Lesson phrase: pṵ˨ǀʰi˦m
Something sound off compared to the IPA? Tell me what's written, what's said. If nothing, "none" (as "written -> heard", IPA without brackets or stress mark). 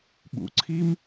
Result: p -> ɓ